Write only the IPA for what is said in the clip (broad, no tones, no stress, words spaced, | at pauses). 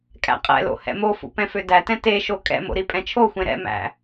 kʼæ̰qʼɛ̰lo̰ hɛ̰mofṵ pɛ̃fødætɛ̃ teʃo kʼɛ̰mo̰ ɾipʼɛ̃t͡ʃʰoxʷẽ ɾɛ̰mæ̰